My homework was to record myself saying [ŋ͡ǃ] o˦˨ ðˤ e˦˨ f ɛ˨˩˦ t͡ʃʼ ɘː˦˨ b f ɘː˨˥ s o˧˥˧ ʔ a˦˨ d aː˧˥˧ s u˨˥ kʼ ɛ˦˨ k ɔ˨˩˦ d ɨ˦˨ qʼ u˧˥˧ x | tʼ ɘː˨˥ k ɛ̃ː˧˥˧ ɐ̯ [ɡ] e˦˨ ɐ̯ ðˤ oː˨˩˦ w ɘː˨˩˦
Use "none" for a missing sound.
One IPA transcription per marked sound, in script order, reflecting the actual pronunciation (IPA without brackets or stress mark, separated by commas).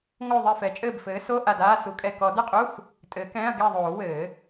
ŋ, ɡ